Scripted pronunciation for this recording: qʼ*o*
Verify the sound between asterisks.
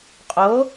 correct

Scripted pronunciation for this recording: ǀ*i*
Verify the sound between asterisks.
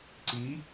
correct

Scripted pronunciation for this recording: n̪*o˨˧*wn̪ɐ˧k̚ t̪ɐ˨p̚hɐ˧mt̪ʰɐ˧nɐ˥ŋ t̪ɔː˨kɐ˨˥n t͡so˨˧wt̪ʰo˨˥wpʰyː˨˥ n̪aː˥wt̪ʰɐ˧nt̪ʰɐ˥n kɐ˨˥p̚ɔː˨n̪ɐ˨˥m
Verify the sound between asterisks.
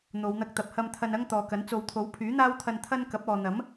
correct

